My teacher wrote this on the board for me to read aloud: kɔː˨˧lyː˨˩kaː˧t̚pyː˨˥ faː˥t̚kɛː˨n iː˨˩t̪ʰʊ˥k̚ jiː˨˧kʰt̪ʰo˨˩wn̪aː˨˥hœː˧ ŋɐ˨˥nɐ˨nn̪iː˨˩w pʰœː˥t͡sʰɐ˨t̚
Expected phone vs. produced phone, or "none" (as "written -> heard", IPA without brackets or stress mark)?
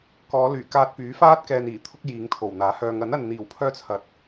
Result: kʰ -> ŋ